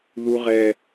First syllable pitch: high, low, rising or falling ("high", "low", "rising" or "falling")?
high